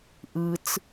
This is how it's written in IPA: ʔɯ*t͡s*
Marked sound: correct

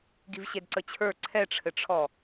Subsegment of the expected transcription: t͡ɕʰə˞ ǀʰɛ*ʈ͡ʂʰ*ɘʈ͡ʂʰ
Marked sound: correct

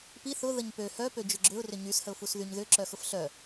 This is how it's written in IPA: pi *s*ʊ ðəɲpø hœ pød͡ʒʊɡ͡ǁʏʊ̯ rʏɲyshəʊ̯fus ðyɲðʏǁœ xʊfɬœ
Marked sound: incorrect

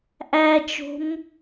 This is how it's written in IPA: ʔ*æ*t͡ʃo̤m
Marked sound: correct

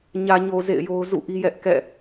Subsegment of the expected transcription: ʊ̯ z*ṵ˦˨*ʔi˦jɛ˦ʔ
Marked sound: correct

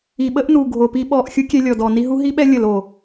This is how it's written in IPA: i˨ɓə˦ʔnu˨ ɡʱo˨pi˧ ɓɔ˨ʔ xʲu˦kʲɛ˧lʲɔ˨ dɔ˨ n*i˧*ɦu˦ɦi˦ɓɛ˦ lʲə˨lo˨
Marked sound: correct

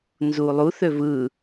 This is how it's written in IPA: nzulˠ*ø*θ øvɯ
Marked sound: incorrect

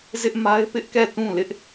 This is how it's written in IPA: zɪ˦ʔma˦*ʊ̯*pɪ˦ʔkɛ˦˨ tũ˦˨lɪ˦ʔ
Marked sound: incorrect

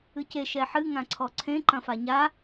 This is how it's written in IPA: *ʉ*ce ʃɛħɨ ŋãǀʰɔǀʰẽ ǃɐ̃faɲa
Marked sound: incorrect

